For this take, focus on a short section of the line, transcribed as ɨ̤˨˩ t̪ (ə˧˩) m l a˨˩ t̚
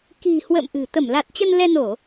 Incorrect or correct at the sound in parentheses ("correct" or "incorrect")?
correct